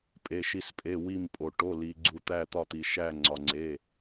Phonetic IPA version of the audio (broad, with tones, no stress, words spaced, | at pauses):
pʼe˩˧˩ʃi˧˩spʼe˩˧˩ wi˧˩mpʼo˩ ʈo˩˧˩ li˩ɡ͡ǀu˩ t̪æ˧˩t̪ɒ˧˩t̪i˩ ʃæ˧˩ŋ͡ǀɒ˩ŋ͡ǀe˩˧˩